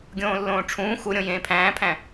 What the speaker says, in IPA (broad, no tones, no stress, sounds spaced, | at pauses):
ɡʲ õː lː õː ʈ͡ʂʰ ũː x u ɾʲ õ j ẽː pʰ æ̃ː pʰ æ̃